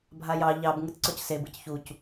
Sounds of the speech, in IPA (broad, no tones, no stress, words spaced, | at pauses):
bʱajɑ ʎɑb ŋɯtǀɔcse bɯcçuc